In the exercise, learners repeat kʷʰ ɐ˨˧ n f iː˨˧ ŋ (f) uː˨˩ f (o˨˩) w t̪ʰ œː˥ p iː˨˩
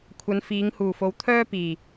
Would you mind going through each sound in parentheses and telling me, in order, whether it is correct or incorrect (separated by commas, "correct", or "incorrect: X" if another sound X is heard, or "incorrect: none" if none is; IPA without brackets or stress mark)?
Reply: incorrect: h, incorrect: o˨˧